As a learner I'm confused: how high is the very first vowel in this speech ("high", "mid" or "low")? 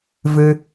high